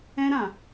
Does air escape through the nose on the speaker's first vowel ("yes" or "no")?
yes